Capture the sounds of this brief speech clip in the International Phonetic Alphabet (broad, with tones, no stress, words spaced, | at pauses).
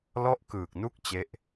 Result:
lɔ˥˩ʔkɯː˨˩k̚nu˥˩k̚ t͡ɕe˥˩ʔ